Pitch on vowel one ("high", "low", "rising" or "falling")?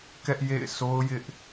high